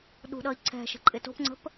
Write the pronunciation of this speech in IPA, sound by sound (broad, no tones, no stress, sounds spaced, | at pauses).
ɗ ṳ ɗ ʌ i̯ ǀʰ ɛ̤ ʃ ə̤ ǃʼ ɪ t o̤ p ŋ͡ǀ ə̤ p